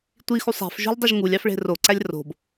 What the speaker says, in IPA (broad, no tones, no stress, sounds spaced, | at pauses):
tʷ i x u sˤ æ̤ f ʒ o̤ lʲ dˤ y ʒ ŋ u lʲ ɑ f ɭ e̤ r o ǀ æ lʲ r o̤ b